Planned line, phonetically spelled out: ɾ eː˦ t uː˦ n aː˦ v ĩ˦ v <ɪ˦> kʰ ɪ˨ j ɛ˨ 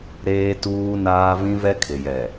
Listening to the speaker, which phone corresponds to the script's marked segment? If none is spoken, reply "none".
ɛ˦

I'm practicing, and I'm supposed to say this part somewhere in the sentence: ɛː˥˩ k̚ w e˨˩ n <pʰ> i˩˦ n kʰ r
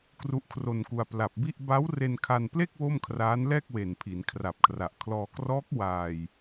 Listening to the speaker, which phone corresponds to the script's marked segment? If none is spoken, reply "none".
pʰ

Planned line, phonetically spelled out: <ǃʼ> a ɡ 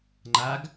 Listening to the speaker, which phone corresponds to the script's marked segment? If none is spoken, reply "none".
ŋ͡ǃ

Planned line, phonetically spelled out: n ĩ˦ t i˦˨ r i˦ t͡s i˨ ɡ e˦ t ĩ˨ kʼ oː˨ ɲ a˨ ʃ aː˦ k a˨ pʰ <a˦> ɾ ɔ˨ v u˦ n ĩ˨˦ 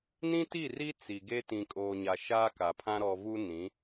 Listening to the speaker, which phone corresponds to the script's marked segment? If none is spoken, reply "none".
ã˦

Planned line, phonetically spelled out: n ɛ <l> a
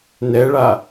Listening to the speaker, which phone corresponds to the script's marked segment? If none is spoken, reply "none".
ɭ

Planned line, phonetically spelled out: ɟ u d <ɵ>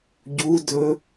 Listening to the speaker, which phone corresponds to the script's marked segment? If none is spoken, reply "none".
ɵ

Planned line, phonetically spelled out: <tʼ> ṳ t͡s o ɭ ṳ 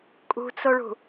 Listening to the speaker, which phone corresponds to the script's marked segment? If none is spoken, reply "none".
kʼ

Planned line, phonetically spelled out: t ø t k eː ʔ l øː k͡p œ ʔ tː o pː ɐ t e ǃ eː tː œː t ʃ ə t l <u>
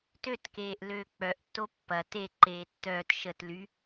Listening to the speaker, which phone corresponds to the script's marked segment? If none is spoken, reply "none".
y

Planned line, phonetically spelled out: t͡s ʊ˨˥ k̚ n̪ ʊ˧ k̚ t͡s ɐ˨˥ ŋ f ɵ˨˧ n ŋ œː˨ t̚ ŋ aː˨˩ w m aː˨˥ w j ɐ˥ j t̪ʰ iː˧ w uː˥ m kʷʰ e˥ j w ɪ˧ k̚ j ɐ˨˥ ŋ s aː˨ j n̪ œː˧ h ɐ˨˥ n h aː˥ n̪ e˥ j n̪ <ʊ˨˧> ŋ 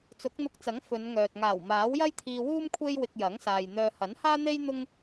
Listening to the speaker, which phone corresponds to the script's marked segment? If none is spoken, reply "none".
ʊ˥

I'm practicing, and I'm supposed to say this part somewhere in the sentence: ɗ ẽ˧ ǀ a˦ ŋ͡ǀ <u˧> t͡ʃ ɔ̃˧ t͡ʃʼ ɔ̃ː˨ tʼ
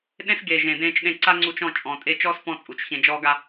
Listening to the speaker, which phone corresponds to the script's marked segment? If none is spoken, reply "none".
u˧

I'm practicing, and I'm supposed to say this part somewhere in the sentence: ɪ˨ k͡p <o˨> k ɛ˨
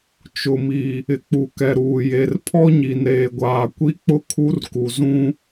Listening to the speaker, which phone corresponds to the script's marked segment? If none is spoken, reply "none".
u˨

